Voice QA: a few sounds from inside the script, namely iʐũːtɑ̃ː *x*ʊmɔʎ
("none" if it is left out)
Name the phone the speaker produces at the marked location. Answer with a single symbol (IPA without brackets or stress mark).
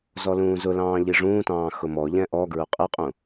x